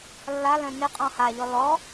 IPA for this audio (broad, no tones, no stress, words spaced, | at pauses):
lːalœ̃ nɪqʼɔ̃ haʎɔ lɔ